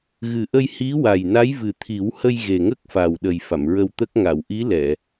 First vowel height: high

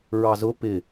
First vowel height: low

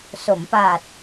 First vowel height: mid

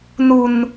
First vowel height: high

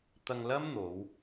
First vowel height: low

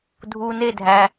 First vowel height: high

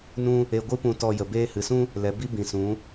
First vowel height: high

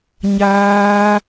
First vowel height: low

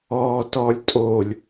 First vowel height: mid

